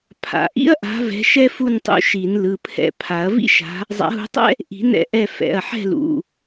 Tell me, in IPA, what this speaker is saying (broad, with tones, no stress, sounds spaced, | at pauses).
pʰ a̰˨˩˦ ʔ ḭ˥ ɐ̯ ʔ a̤˨˦ v ɛ̤˨˦ ʃ ɛ˥ f u˥˨ n tˤ ṵ˨˦ ʃ i˨˩˦ n l ɯ˩˧˩ pʰ ɛ̰˨˦ pʰ a˨˩˦ ɐ̯ v ḭ˥ ʃ a̤˨˦ | zˤ a̰˨˦ ɦ ṳ˨˦ tˤ ɛ̰˥ | ʔ i̤˨˩˦ n ɛ̰˥˨ ʔ ɛ˥˨ f ɛ̰˩˧˩ ɐ̯ ħ ɛ̤˥˨ l ṵ˩˧˩